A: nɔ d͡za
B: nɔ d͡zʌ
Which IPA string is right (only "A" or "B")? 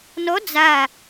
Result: A